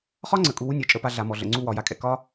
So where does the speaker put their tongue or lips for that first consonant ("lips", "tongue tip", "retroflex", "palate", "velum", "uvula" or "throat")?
uvula